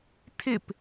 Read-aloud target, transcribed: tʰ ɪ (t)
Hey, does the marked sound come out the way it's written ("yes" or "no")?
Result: no